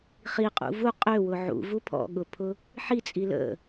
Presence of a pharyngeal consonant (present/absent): present